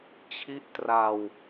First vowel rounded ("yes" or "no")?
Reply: no